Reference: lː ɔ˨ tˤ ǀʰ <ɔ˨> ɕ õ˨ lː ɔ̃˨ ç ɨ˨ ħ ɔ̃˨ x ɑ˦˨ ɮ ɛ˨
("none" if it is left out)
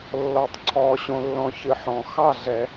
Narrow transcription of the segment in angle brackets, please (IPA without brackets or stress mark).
ɔ˨